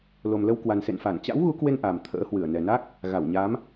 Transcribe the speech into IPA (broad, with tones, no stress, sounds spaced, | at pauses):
l o˨˩ m l ə˧ w k w a˨˩ n s ḛ˧˨ n f a˧˩ n t͡ɕ a̰˧˥ w ɣ u˨˦ k w e˧ n ʔ a˨˩ m t̪ʰ ə̰ː˧˥ h w ɨ˧˩ ə̯ n ɛ˨˩ n a˦˥ k̚ | ɣ a˧˩ w ɲ a˨˦ m